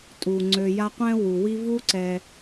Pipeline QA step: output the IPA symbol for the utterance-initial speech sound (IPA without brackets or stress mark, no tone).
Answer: tʼ